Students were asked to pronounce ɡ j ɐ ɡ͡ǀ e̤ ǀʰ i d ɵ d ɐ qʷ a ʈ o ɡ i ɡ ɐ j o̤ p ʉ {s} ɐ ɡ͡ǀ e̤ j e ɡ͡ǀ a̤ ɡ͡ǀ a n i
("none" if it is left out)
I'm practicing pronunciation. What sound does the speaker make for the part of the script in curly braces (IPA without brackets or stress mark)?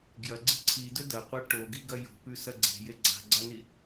s